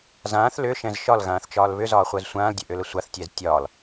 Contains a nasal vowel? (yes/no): yes